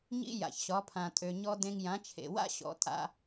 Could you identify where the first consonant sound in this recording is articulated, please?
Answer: palatal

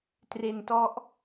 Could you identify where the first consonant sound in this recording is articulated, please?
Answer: alveolar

